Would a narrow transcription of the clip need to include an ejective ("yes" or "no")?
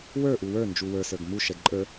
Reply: yes